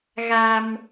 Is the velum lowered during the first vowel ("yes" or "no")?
no